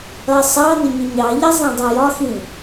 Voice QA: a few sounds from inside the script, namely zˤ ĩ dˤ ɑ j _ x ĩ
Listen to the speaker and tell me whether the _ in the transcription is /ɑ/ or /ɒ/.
ɒ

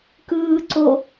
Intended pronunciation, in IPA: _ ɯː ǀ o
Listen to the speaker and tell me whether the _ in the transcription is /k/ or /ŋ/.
k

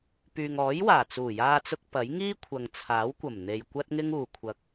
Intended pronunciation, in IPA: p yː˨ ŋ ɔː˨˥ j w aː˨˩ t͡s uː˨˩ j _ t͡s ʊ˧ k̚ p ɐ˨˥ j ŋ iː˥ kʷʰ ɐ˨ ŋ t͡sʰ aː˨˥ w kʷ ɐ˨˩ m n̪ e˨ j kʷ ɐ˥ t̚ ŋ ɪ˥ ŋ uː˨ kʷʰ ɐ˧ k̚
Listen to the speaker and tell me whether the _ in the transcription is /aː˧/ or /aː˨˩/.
aː˧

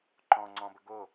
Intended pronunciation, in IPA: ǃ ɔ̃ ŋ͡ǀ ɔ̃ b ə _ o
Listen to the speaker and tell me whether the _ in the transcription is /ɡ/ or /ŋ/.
ɡ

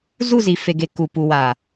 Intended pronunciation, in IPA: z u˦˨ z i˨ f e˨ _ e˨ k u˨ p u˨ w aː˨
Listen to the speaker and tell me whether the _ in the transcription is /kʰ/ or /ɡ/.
ɡ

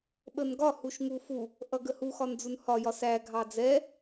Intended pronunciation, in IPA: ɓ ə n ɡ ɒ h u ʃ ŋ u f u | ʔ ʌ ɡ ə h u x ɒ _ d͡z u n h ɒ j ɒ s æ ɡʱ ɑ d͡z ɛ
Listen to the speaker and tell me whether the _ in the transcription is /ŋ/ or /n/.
n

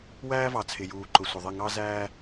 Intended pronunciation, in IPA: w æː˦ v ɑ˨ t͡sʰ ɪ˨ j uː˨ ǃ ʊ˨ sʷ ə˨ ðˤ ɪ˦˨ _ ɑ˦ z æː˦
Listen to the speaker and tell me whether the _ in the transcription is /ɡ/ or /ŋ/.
ŋ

